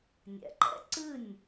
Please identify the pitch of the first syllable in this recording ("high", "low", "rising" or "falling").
low